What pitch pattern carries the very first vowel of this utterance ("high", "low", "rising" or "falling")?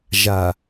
low